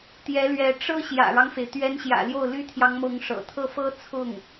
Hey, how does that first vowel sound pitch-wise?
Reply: rising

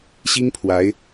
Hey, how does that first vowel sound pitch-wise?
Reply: high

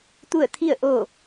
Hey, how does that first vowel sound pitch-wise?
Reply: falling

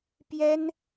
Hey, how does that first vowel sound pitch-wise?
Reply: high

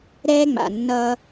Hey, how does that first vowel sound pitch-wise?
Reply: high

